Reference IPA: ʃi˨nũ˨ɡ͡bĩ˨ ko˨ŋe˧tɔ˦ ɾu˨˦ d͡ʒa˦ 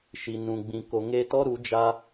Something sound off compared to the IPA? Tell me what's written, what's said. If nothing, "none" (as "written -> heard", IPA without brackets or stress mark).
none